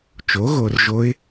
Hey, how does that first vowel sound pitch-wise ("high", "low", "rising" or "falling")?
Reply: rising